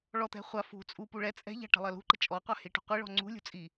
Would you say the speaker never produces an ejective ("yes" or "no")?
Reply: no